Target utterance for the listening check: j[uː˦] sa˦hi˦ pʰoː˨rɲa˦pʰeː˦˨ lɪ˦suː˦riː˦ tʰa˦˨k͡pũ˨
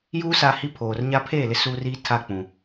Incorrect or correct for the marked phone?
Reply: correct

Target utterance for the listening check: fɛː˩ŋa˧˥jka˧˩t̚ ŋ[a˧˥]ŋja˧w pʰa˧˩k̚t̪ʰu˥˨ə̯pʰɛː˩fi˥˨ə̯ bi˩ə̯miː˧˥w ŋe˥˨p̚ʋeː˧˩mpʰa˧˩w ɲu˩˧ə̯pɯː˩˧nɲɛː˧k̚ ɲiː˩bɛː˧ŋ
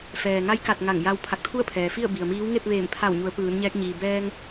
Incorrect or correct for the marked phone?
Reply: incorrect: a˧˩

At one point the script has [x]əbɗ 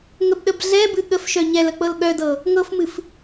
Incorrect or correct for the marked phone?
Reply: incorrect: ŋ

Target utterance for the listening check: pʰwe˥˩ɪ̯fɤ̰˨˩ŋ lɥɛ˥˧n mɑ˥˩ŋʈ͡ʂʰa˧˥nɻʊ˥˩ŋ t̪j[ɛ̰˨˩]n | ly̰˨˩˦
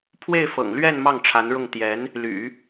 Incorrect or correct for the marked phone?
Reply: incorrect: ɛ˧˥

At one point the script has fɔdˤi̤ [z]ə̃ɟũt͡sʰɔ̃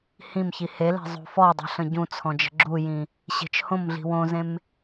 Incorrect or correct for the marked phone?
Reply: incorrect: ɬ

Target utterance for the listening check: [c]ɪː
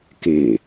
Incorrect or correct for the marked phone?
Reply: incorrect: k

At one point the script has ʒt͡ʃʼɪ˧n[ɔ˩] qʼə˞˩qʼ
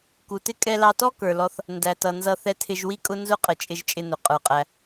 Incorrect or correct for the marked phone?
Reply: incorrect: ʊ˩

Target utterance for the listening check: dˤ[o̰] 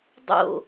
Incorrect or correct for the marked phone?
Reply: correct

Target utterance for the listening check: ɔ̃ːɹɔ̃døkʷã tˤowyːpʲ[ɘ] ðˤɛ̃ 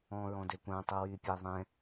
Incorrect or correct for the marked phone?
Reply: incorrect: e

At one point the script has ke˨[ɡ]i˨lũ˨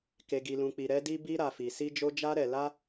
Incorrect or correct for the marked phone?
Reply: correct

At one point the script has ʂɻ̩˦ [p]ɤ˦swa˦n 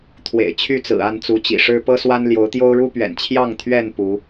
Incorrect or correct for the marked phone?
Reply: correct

